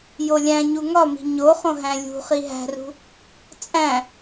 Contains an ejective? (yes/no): yes